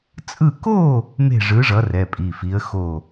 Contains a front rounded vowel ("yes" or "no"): no